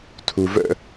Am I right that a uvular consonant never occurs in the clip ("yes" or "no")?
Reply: yes